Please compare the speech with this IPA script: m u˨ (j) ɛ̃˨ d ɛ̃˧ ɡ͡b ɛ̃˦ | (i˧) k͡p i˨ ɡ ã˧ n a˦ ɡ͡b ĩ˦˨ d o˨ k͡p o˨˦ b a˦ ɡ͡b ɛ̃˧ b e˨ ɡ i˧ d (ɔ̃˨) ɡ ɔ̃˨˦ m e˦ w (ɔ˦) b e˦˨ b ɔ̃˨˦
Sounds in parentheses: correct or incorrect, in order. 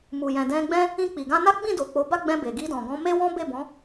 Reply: correct, incorrect: ĩ˧, correct, incorrect: ɔ̃˦

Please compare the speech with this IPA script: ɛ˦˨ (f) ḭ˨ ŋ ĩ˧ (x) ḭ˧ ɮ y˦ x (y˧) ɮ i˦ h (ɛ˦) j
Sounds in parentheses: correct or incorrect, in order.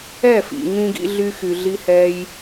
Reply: correct, incorrect: ɡ, correct, correct

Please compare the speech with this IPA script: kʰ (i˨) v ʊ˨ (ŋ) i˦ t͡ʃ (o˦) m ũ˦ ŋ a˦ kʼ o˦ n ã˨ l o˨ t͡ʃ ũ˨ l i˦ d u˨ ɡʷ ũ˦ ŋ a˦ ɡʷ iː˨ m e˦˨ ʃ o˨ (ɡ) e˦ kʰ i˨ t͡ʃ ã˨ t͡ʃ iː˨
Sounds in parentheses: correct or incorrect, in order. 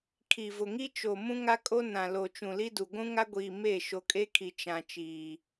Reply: correct, correct, incorrect: o˨, incorrect: kʼ

